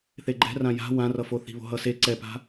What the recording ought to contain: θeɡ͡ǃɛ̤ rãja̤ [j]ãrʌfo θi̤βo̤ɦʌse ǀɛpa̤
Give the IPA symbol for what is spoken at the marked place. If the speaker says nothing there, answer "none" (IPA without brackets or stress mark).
w